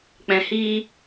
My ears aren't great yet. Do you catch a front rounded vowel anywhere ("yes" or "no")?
no